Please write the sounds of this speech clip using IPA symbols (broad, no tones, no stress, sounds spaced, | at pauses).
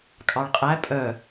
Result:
kʼ ɑ ɭ qʼ æ pʼ œ